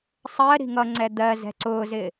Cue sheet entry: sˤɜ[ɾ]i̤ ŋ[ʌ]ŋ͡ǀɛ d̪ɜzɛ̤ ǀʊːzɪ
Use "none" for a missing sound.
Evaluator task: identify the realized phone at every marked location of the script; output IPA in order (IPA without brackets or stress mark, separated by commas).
ɾ, ʌ